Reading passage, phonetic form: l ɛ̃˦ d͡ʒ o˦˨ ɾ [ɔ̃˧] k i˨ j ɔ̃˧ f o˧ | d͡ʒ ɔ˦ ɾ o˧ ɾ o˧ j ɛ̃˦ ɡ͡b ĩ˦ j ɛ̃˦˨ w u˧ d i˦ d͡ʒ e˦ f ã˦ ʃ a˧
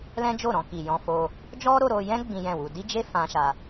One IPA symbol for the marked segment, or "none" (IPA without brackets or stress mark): ɔ̃˧